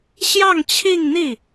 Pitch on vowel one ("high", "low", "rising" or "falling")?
falling